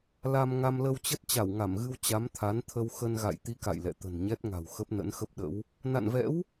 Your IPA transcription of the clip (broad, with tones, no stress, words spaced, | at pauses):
la˧mŋa˧m lə˧wt͡ɕə˦˥t̚ t͡ɕa˧˩wŋa˧˩mɣɨ˧w t͡ɕa˨˦mt̪ʰa˨˦nt̪ʰə˧w xə˧nɣa̰˧˨j t̪i˧ka̰˧˨jlɛ̰˧˨ t̪ə̤˨˩nɲɛ˦˥t̚ŋa̤˨˩w xə˦˥p̚nə̰˧˥nxə˦˥p̚ɗə̰˧˥w | na̰˧˨nvɛ̰˧˥w